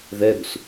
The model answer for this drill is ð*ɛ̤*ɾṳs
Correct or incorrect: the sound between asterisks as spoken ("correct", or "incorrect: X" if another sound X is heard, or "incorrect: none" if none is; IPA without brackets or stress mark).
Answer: incorrect: ɛ